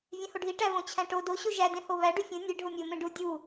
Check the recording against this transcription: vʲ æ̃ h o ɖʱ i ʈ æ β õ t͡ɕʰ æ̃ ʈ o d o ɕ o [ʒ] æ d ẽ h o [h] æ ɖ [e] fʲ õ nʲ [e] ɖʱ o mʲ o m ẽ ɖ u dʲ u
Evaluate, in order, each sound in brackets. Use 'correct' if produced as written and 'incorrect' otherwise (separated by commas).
correct, incorrect, incorrect, correct